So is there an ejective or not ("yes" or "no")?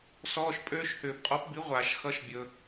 yes